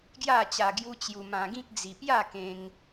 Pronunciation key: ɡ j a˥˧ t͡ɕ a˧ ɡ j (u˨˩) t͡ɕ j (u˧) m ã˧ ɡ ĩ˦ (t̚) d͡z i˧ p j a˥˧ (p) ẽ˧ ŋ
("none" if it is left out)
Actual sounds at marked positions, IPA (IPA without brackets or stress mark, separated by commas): u˦, u˧, k̚, k